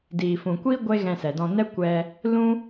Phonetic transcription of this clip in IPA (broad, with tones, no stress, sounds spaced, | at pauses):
d iː˨ f ũ˨ kʷ iː˦ ɡʷ e˦ ɣ ɛ̃˧ s ɛ˨ d ɔ̃˧ n ɛ˦ kʷ ɛ˧ | l ũ˦